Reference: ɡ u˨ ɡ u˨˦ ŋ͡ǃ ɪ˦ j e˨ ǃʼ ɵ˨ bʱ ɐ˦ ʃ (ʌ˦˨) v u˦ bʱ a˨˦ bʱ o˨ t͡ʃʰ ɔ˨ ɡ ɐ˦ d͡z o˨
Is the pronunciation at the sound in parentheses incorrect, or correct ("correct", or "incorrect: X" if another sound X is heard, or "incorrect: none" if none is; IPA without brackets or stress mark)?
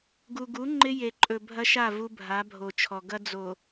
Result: incorrect: a˦˨